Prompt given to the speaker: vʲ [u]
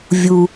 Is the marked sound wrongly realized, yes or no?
no